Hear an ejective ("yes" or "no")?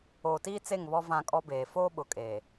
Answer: yes